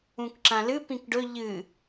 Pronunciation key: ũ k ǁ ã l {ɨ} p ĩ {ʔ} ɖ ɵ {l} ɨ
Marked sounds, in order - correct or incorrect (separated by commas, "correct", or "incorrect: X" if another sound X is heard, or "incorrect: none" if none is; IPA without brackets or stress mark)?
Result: correct, incorrect: k, incorrect: ʎ